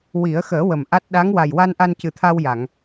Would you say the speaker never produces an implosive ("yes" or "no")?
no